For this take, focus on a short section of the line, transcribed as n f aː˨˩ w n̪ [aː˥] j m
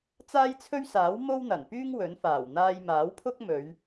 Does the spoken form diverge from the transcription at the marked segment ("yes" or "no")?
yes